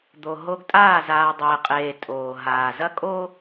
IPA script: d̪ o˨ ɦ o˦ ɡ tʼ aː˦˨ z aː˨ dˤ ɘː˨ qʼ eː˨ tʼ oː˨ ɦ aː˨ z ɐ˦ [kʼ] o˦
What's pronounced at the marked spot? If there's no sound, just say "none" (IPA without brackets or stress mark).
kʼ